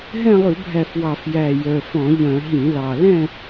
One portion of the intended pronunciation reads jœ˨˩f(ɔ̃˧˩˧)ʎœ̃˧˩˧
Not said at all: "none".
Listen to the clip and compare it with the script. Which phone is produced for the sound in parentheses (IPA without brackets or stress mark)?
ɔ̃˧˩˧